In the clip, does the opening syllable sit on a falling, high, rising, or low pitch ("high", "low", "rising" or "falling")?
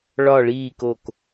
low